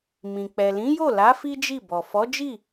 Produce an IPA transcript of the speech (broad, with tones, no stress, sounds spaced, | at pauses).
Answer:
m ĩ˨ k͡p ɛ˨ l ĩ˨˦ j o˦˨ l a˨˦ f i˦ d͡ʒ i˦˨ b ɔ˨ f ɔ˨˦ d͡ʒ i˦˨